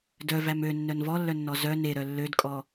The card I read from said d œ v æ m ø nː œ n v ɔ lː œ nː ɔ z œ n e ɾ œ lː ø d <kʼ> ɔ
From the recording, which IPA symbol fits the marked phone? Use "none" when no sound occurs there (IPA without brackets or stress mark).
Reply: kʼ